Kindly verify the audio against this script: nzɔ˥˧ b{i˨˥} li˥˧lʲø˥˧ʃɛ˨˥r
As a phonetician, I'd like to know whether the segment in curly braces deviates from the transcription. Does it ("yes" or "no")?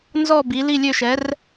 no